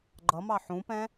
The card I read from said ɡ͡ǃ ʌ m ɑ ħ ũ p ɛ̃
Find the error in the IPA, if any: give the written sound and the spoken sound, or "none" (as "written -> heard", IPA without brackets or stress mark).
none